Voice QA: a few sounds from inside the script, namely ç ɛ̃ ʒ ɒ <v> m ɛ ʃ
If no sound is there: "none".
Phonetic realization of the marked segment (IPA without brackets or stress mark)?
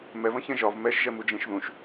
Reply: v